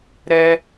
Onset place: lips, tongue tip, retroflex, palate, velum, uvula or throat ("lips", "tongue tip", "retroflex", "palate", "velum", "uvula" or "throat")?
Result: tongue tip